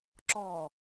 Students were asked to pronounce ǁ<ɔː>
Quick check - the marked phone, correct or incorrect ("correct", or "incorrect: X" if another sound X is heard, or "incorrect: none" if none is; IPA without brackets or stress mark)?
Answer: correct